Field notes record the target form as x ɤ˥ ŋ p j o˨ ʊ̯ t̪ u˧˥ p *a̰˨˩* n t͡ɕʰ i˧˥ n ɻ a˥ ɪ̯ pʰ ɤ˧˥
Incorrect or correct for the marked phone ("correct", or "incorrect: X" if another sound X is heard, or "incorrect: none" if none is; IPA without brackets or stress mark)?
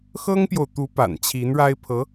correct